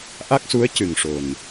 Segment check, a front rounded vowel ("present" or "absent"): absent